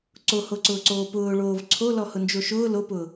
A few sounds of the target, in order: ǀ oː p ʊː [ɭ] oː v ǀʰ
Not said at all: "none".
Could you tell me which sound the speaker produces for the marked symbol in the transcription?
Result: ɭ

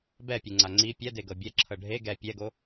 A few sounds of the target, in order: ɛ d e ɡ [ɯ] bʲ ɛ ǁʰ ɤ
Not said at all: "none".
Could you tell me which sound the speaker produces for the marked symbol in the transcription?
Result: ɤ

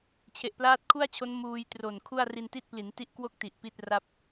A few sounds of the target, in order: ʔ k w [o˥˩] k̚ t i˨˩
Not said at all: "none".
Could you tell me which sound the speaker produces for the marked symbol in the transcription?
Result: o˥˩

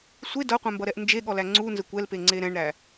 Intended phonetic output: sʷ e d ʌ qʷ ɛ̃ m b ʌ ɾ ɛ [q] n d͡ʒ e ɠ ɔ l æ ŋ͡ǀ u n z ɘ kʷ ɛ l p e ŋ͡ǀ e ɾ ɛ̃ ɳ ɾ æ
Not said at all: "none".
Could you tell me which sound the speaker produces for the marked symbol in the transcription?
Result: ʔ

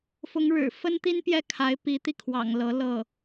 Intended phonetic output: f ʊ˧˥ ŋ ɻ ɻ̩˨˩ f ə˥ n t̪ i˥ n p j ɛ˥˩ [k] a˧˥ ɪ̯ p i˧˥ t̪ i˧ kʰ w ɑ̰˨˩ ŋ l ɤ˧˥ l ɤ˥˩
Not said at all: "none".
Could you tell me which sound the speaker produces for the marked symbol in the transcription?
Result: kʰ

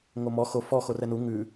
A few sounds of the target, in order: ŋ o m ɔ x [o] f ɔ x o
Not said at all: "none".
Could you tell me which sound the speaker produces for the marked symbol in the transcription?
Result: o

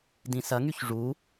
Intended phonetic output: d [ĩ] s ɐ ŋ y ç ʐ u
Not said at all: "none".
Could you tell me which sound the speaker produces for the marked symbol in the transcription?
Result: ĩ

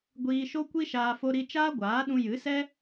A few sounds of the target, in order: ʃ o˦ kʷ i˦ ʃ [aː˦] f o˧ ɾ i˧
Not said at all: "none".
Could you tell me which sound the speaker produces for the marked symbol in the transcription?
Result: aː˧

